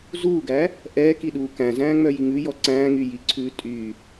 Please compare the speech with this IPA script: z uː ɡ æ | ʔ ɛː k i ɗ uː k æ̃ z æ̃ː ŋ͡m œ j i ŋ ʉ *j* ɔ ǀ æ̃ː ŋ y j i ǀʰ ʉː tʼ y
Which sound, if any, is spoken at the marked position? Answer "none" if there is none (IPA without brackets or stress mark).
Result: j